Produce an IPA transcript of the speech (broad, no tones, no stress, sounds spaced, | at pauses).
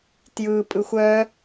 t j ɯ pʼ ɯ xʷ œ